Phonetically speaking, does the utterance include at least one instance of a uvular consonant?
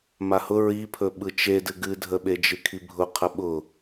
yes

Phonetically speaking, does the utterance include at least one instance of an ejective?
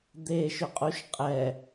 yes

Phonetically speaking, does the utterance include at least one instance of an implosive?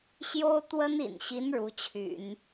no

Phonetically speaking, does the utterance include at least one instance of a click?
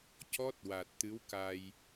no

